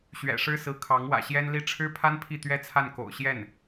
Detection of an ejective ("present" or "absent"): absent